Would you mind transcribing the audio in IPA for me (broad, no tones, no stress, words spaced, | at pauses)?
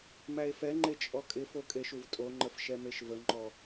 mæe̯fɛŋ͡ǃe t͡ʃʼɔkʼɪfo kʼeʃuvtʼoŋ͡ǃəf ʃɛmeʃvəŋ͡ǃɔ